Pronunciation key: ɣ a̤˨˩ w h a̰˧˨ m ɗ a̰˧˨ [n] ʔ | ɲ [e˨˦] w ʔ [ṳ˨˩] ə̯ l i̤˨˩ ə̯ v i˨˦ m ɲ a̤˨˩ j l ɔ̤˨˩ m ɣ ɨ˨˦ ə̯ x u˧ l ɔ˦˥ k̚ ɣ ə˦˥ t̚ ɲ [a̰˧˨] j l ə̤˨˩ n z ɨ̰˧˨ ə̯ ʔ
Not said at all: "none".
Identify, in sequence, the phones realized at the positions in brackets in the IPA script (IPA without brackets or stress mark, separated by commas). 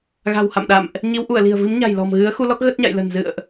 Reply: m, i˨˦, u˧˩, a̰˧˨